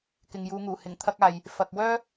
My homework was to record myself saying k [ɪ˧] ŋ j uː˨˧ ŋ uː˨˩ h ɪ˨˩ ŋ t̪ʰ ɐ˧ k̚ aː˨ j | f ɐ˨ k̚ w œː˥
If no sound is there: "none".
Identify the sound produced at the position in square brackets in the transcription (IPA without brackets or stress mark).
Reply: ɪ˨